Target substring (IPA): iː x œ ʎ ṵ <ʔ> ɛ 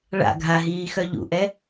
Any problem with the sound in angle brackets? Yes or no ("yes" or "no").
no